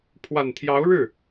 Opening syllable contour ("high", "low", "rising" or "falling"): low